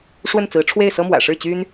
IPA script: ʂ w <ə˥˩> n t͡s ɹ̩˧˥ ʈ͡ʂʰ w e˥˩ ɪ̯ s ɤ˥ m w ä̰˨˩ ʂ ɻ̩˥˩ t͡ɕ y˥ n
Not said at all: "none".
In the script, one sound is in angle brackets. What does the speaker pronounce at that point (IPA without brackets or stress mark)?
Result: ə˥˩